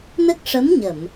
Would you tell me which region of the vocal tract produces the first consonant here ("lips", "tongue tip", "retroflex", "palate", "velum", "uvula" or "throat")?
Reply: tongue tip